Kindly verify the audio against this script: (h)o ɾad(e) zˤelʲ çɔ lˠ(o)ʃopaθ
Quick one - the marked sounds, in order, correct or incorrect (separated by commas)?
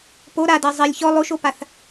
incorrect, correct, correct